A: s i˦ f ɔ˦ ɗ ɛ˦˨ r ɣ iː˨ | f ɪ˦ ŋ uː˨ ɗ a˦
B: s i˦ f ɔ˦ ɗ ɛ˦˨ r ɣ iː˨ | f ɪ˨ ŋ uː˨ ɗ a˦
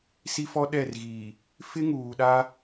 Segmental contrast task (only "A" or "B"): A